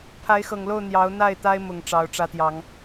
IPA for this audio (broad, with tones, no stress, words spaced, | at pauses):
pʰa˨˦ɪ̯xɤ˨˩ŋlo˥˨ʊ̯ n̪jɑ˨˦ʊ̯n̪a˥˨ɪ̯t̪a˦ɪ̯ mʊ˨˩ŋ ʈ͡ʂɑ˨˦ʊ̯ʈ͡ʂä˦t̪jɑ˨˦ŋ